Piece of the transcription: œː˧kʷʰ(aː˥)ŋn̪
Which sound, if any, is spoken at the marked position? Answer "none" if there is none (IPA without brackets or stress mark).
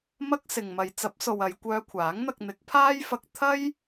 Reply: aː˨˥